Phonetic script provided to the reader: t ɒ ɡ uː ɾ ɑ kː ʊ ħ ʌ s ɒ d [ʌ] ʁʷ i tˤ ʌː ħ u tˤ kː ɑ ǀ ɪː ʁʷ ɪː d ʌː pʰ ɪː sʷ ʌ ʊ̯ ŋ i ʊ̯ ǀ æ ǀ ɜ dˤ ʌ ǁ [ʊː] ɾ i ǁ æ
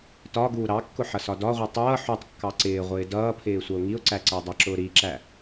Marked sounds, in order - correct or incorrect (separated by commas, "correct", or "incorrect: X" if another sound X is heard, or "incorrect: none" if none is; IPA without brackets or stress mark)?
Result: incorrect: ɒ, correct